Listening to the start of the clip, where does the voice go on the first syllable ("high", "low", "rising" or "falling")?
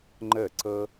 falling